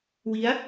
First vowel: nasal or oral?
oral